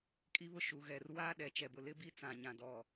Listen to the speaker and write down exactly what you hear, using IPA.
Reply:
kʼi˦βʊ˦ʃu˨ ɣɛ˨rwaː˦ ɗɛ˨t͡ʃɛ˨bʊ˨ lɪ˦bi˦ t͡sã˨ɲã˨ dɔ˨

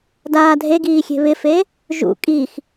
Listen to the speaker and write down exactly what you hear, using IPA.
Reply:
daːdʱeɡiːxʲe̤ βɪfe | ʒṵ kʼix

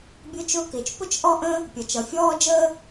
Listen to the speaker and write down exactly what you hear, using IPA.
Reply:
bʲʊ˥t͡ʃʊː˥kɪː˩t͡ʃ pʊ˥t͡ʃ ʔɔ˥ʔə̃˥ | pʲʌ˩t͡ʃʌ˩fʲɔː˥d͡ʒəː˥

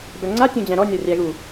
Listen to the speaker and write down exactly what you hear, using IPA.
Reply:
bœŋ͡ǀa tʲõd͡ʑæ̃ɾɔ nʲɒrʲæɣu

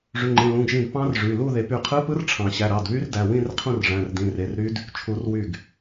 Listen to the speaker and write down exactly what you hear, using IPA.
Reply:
ʐy˩˧˩ŋ͡ǃẽ˩˧˩ lũ˩˧˩ɡʒĩ˧˩d pɑ̃˦˥rʐy˩˧˩lu˥˨ ðe˨˩˦py˧˩qʰɯ˧˥˧pɯ˦˥r ʈ͡ʂʰɑ̃˨˩˦ ɕæ˩˧˩ɾɑ˩˧˩dβy˦˥rdæ˩˧˩ wĩ˥˨rqʰũ˥˨r ʐæ̃˩˧˩rdĩ˩˧˩ re˩˧˩rɾy˦˥d | t͡ʃʰu˨˩˦rwy˧˩ɡ

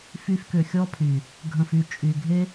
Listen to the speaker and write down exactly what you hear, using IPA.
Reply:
fy˧fkʏ˨xʲɔ˦pʰy˨ | ɡʱə̃˨fy˨ t͡ʃʼy˨ ɡʱe˦

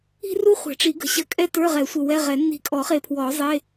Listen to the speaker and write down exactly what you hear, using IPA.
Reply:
i̤˥ru˥ χʷɛ̤˨˩˦ʈ͡ʂi˨˩˦ɡə̤˨˩˦ ɕə˧˩ kʼɛ˥tə˞˧˥˧ʁɛ˨˩˦ sʷə˧˩wɛ˧˥˧ʁɛ˨˩˦ nːi̤˧˩kʼɔ˨˩˦χe˧˩ pʰwɔ˨˩˦zˤe˧˥˧

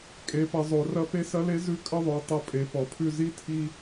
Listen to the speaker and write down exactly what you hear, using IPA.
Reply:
kʼe˩˧pɐ˩˧ zˤo˩˧rɐ˥ pe˥sɐ˥le˥ zʉ˥kʼə˥ðˤo˩˧ tˤɐ˧˥pʼe˩˧ pɔ˩pʰʉ˧ zi˧˥tʰi˧

